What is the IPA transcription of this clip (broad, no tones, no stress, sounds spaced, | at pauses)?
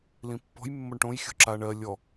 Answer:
l ĩ pː ɔ̤ j mː o ɳ ʈ õ j xʲ o̤ ǁ a ɳ ɜ lʲ ɔ